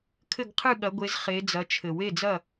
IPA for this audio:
kʰɘ˥˨ɡqʰɨ˥˨ɠɐ˨˦ɡʷe˨˦z χe˨˦d͡zɐ˨˦t͡ʃʰɘ˨˩˦w e˩˧˩d͡zɐ˥˨

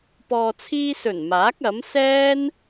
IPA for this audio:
pɔː˨t͡sʰiː˧sɵ˨˩n maː˨˥k̚ɐ˨˥m sɛː˥n

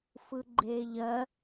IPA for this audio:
fɯɡ͡ǃeːʎɜ

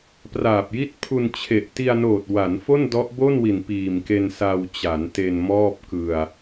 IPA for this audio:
praː˨˩p̚ji˦˥t̚pʰu˧n t͡ɕʰe˨˩ʔti˧a̯noː˨˩t̚ wa˩˦n fo˥˩ndɔ˦˥ʔ bo˥˩nwi˨˩n piː˨˩mke˧n sa˧wt͡ɕa˩˦nte˧n mɔː˥˩p̚kɯ˧a̯

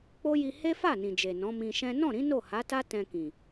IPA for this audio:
k͡po˦ji˧ he˦fa˦˨nĩ˨d͡ʒe˨ nɔ̃˨˦mĩ˧ʃɛ̃˦ nɔ̃˦˨ɾĩ˨˦ no˦˨ha˨˦ta˦ tɛ̃˧kĩ˨

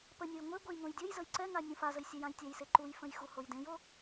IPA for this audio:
pənʲoj ŋʷe ɡʷejŋõjdʲojzəj ǀɛŋa nʲũfazəj sʲɛjãjtʲə˞jse ǃujfə̃j xuhojdẽjo

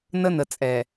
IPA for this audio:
nə˦nə˨t͡sʼɛ˨

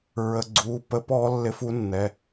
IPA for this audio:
ɹə˩˧˩ɡ͡ǀu˩˧˩pə˧˥pɔ˧˥ lːɪ˧˥fu˧˥nːɛ˩˧˩

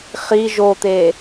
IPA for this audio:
χi ʒot̪e

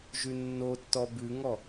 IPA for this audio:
ʒʉnːotːɔ bʉŋɔ

